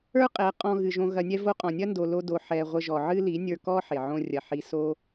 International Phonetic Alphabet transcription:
ə˞˦ qʼ ɛ˨˦ qʼ ɔ̃˧ ɣ ɨ˨ ʒ õ˧ ɣ ɐ˧ nʲ ɛ˦ v o˧ qʼ ɔ̃˨ nʲ ɐ˦ n d o˧ l o˦ d o˧ ħ ɛ˧ ʁʷ ə˧ ʒ ɔ˨ ʕ ɨ˦ l i˨˦ nʲ ə˞˧ k ɔ˦ ħ e˨ ʕ õ˦ rʲ ɐ˧ ħ i˧ s o˦

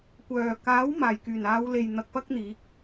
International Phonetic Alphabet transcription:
kʷ œː˨˩ k aː˨˥ w m aː˨˩ j k yː˨˩ n aː˨˧ w l e˨ j n̪ ɐ˧ k̚ p ɐ˥ k̚ n̪ iː˨˥ k̚

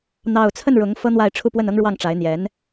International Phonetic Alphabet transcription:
n̪ ɑ˥˧ ʊ̯ t͡sʰ ə˥˩ n ɻ ʊ˧˥ ŋ f ɤ˥ n̪ w a˥˧ ɪ̯ ʈ͡ʂʰ u˥˧ p w ə˥˩ n ɤ˥ ŋ ɻ w ɑ˥˩ ŋ ʈ͡ʂ a˧˥ ɪ̯ n̪ j ɛ˧˥ n

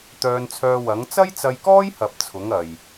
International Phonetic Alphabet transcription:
t̪ œː˧ n t͡sʰ œː˧ w ɐ˨˥ ŋ t͡s ɐ˥ j t͡s ɐ˧ j k ɔː˥ j h ɐ˨ p̚ t͡sʰ ʊ˨˥ ŋ ɐ˨ j

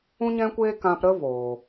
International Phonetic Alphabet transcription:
ũ˧ ɲ ɛ̃˧ kʷ eː˧ k ã˧ p ɾ ə˦ v oː˨

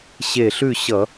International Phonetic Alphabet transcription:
ɕ e˧˩ ɬ ʉ˥˨ ɕ ʌ˧˩˧

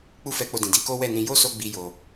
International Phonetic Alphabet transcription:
k͡p u˦ f ɛ˧ k͡p o˧ d ĩ˨ d i˧ k o˦ w ɛ˦˨ n ĩ˧ j o˦ s o˧ ɡ͡b i˦ j o˧

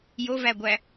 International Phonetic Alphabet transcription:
j o v æ ɡʷ æ

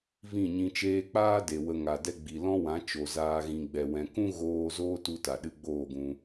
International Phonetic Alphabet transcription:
v ĩ˦˨ ɲ ĩ˧ t͡ʃ eː˧ k͡p aː˦ d e˨ w ə˧ ŋ a˨ d ɛ˧ ɡ͡b i˨ l ɔ̃˦ w ã˨˦ t͡ʃ o˨ z aː˧ ɣ ĩ˨ ɡ͡b ɛ˨ w ɛ̃˨ k ũ˦ ɣ oː˧ z oː˦ t u˧ t a˨ ɗ ɨ˧ ɡ͡b oː˦˨ ɡ ũ˧

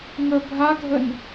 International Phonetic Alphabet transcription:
ŋ ə bʱ a ɡʱ ə n

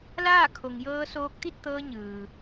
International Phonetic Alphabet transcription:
l aː˥˨ kʰ o˩ ŋ j ɤː˧ s oː˧ k̚ t̪ i˥˨ t̚ t̪ ɤː˧ ɲ ɯː˩

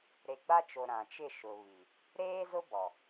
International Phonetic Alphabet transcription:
ɾ e˨ ɡ͡b a˦ t͡ʃ o˨ ɾ ã˨ t͡ʃ ɪ˦˨ ʃ ʊ˨ β i˨ | ɾ eː˦ z ʊ˦ b ɔ˨

